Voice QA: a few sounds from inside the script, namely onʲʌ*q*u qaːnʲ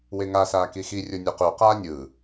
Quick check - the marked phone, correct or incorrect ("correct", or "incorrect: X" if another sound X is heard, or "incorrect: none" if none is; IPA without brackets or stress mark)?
correct